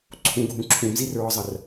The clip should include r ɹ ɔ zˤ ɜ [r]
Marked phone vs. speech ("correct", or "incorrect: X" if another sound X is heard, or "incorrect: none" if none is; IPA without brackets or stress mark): correct